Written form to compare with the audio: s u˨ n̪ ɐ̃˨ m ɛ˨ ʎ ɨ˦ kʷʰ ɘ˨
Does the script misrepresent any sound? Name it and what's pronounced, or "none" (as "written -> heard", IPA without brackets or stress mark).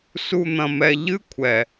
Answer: ɘ˨ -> ɛ˨